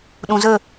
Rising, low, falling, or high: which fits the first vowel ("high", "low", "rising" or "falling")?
low